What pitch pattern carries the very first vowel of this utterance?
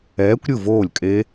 rising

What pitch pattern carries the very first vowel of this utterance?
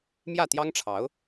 falling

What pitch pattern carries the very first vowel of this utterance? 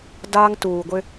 high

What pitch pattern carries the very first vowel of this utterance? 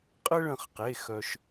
high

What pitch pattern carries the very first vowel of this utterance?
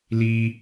high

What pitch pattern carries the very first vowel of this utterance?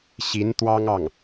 rising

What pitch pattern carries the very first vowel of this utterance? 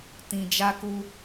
low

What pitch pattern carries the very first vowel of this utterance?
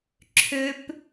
high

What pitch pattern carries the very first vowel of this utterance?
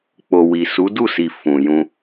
low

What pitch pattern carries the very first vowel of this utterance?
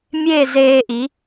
falling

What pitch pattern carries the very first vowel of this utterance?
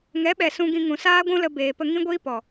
rising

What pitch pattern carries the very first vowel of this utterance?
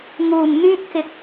low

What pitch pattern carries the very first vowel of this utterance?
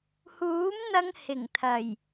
rising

